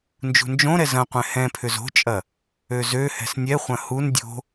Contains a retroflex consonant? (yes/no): no